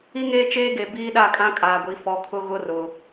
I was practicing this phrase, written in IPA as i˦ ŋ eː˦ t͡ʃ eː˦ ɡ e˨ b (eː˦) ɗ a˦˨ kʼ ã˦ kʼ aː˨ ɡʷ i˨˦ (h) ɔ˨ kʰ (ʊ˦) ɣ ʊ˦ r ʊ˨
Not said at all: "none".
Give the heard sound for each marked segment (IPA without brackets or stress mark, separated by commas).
iː˦, f, ʊ˦